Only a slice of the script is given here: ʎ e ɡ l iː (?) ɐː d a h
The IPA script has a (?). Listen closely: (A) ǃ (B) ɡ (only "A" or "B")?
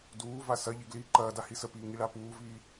A